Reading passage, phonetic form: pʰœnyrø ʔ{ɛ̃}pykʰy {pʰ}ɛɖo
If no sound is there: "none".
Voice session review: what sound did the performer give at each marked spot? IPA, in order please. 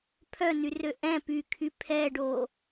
ɛ̃, pʰ

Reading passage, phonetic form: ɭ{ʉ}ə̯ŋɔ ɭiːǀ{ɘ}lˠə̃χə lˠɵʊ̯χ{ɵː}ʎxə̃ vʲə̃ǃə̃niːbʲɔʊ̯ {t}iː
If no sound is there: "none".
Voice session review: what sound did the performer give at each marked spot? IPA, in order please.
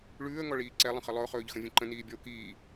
ʉː, ɛ, ɵː, k

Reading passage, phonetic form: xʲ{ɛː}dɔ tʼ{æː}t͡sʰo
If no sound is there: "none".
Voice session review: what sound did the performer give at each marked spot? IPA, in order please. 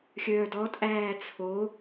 œː, æː

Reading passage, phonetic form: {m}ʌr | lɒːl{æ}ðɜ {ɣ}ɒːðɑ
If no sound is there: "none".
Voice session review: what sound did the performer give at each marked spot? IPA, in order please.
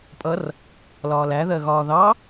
pʼ, æ, ɣ

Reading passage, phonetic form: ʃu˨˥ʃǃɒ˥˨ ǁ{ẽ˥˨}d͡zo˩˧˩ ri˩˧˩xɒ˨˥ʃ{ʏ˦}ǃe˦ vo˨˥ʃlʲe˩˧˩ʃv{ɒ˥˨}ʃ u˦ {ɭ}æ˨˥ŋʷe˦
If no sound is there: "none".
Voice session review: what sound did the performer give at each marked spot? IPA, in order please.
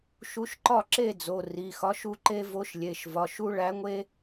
e˥˨, u˦, ɒ˩˧˩, ɭ

